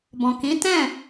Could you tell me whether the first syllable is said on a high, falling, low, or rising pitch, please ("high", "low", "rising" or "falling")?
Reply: low